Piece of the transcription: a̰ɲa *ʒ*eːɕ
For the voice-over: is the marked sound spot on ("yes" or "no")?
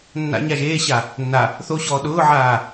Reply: yes